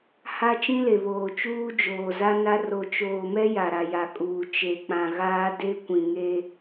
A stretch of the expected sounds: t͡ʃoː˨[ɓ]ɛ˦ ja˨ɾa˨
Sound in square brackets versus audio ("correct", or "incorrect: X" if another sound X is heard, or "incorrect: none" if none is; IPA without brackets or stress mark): incorrect: m